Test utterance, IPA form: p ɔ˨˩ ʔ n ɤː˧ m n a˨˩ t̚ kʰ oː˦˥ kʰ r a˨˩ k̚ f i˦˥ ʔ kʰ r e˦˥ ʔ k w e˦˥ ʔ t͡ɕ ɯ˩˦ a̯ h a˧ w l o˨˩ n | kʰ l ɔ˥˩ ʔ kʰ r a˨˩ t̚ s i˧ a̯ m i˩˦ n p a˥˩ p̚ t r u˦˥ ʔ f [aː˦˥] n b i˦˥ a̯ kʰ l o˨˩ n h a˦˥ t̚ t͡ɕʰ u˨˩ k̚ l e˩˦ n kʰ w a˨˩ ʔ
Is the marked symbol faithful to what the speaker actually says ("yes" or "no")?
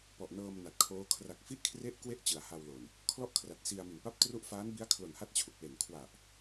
yes